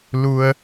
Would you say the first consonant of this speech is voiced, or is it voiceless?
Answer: voiced